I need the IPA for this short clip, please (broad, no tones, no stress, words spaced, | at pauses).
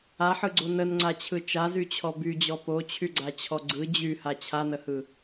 aħɯɡ͡ǀo nənŋ͡ǀat͡ɕʰɯ t͡ʃazyt͡ɕʰɔ byd͡ʑɔ pot͡ɕʰyɡ͡ǀat͡ɕʰɔ ɡ͡ǀɯ d͡ʑyha t͡ɕʰanəhɯ